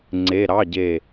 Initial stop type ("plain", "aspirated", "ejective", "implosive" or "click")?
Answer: click